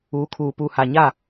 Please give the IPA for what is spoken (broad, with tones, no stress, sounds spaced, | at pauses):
uː˨˦ kʰ uː˨ p uː˨ h aː˨ ɲ a˦˨